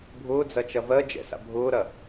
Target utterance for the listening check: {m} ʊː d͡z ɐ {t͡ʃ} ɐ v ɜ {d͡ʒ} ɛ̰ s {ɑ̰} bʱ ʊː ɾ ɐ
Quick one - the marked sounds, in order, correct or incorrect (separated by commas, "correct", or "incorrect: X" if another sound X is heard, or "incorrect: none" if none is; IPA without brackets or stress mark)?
incorrect: bʱ, correct, correct, incorrect: a̰